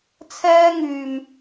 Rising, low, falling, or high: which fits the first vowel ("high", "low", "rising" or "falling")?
high